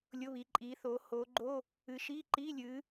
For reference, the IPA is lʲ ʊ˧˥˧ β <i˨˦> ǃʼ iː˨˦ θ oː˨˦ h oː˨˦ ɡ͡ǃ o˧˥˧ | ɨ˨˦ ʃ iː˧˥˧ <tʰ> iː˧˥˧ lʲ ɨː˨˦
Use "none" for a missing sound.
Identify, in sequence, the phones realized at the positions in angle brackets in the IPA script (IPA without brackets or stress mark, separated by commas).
i˨˦, ǃ